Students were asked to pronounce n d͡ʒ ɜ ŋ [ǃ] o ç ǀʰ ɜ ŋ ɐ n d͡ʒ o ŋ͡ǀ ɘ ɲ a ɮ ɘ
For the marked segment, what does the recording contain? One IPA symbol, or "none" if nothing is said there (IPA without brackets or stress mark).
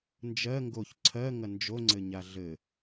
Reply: ɡ